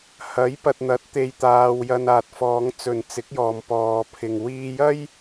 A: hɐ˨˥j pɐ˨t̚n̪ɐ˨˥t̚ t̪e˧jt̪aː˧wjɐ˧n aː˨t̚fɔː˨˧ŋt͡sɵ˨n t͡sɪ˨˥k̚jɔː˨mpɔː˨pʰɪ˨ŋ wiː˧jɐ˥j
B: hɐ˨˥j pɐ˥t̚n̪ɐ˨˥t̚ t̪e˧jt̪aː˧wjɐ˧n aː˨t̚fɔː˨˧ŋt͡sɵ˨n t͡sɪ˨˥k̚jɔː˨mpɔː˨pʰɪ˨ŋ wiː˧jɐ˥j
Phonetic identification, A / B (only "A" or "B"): A